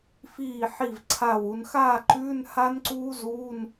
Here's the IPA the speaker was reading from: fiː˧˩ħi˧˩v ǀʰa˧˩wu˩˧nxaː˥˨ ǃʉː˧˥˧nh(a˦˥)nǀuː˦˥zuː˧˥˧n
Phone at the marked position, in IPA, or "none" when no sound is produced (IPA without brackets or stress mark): a˦˥